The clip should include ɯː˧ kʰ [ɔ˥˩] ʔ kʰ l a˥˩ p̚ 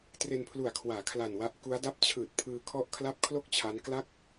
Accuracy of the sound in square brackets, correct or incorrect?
correct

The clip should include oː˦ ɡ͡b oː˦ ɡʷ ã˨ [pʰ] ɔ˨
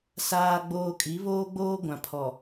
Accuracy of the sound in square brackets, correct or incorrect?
correct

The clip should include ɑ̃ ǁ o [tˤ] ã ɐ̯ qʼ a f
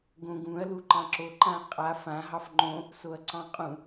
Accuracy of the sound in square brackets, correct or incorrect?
incorrect: ǃ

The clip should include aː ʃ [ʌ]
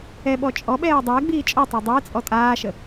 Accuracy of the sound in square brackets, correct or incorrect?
incorrect: ə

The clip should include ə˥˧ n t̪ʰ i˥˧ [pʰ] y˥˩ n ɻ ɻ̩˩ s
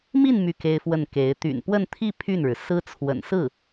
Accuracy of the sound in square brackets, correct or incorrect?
correct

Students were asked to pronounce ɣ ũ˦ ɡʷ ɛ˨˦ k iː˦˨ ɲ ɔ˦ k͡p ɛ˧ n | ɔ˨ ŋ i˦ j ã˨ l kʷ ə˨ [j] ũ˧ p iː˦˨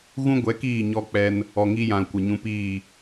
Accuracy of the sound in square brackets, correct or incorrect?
incorrect: ɲ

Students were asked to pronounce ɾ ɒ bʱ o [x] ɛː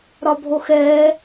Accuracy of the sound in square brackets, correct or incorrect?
correct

